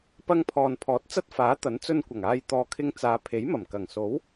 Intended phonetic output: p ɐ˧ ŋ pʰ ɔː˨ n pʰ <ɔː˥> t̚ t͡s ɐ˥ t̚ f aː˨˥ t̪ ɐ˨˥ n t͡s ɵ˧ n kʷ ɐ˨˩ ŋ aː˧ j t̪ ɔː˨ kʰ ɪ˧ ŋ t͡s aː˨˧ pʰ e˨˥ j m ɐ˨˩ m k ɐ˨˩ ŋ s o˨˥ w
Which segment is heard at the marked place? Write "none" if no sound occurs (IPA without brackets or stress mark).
ɔː˨˥